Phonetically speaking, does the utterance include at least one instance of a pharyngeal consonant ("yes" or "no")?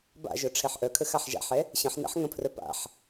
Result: yes